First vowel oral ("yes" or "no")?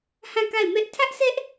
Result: no